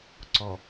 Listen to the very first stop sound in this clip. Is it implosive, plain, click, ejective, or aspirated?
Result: click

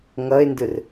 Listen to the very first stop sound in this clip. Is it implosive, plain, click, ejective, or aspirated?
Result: plain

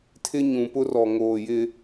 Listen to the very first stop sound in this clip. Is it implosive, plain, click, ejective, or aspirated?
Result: aspirated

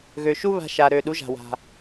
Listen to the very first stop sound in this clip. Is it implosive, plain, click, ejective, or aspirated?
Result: implosive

